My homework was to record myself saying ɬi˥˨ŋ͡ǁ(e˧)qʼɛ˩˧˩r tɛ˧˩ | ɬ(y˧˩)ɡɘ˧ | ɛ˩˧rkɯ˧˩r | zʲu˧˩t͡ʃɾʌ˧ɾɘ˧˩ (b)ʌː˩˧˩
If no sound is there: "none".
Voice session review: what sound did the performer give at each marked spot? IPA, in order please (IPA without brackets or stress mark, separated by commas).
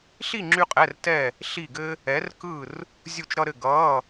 y˧, i˧˩, ɡ